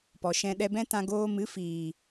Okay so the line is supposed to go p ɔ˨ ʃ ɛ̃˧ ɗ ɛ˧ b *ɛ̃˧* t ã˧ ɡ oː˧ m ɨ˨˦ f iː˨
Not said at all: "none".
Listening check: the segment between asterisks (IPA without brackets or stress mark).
ɛ̃˦